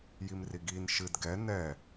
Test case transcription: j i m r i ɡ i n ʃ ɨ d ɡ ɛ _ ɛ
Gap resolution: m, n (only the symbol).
n